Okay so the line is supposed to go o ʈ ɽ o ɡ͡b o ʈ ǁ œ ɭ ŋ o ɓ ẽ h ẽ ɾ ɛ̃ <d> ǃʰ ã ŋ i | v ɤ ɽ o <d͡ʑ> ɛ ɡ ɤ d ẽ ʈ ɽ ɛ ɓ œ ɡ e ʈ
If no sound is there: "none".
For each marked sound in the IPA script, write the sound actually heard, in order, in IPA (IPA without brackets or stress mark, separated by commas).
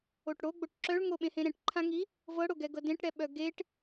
ʈ, ɡ